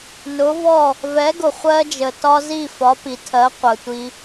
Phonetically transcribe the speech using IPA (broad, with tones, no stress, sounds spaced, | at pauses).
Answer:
n ʊ˩˥ v ɔ˥˩ | v ɛ˩˥ ɡ ʊ˩ χʷ ɜ˧ d͡ʒ ə˩ t ɒ˧ z i˥˩ f ɒ˩˥ p i˩ tʰ ɜ˩˥ qʷ ə˩ tʷ i˧